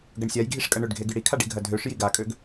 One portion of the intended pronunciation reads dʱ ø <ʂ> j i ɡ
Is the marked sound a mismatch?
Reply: no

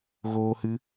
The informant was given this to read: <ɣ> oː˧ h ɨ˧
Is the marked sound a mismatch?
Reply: no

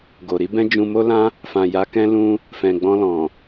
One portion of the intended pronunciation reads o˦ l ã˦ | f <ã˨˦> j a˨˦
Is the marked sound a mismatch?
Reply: yes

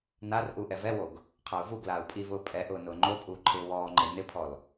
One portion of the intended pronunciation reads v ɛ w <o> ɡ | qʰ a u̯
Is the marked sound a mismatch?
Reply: no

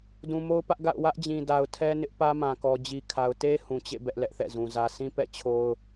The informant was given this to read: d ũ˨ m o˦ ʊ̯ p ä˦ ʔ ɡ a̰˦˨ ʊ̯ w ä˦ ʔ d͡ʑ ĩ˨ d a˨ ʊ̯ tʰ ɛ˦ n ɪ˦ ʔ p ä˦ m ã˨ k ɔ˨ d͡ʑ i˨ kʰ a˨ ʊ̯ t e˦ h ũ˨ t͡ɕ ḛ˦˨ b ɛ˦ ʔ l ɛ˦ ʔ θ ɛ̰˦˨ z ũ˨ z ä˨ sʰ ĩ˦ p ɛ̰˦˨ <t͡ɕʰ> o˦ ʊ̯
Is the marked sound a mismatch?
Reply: no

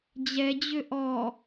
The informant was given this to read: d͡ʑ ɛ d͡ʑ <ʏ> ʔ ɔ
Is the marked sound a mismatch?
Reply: no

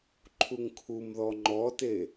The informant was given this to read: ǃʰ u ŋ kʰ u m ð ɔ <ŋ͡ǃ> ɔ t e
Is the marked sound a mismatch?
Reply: no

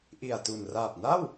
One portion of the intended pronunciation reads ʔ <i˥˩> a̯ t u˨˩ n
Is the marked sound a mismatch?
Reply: yes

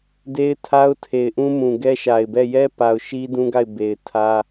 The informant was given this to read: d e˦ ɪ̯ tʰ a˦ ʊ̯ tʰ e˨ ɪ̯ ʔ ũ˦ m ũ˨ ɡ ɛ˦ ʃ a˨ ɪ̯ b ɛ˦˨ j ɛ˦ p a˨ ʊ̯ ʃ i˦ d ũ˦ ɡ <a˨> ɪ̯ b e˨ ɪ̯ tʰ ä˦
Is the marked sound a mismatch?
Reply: yes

